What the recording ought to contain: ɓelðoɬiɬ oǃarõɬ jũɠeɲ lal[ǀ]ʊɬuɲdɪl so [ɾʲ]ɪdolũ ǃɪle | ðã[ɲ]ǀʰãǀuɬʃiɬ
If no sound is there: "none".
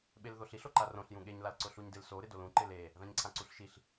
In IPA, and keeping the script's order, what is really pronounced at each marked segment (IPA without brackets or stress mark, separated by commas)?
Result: ǀ, ɾ, ɲ